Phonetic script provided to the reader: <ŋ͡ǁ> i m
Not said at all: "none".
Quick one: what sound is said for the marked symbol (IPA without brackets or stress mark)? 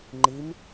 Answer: ŋ͡ǃ